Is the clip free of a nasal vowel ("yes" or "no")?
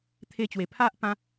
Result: no